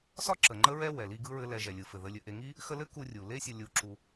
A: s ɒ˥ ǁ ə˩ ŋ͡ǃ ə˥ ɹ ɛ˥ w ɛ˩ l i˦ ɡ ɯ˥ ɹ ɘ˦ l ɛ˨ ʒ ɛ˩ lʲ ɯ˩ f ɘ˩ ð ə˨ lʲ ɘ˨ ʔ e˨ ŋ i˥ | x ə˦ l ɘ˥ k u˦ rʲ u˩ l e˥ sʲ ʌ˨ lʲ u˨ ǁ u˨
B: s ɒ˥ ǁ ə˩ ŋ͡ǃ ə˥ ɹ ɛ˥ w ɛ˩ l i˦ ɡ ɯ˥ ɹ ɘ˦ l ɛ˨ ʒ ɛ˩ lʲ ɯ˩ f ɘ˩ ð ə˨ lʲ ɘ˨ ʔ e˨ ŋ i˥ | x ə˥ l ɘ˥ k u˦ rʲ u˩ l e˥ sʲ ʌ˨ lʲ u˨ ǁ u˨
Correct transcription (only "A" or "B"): A